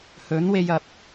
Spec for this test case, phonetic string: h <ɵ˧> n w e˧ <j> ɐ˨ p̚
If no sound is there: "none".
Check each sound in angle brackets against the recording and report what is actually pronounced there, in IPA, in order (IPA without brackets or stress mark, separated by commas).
ɵ˨˥, j